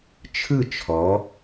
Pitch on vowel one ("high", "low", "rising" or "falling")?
falling